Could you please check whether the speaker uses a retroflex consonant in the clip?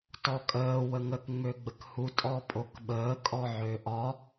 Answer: no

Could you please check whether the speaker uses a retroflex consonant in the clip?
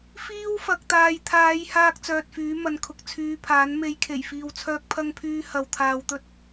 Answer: no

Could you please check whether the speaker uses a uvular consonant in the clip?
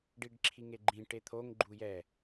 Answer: no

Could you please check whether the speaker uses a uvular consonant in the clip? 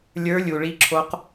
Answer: yes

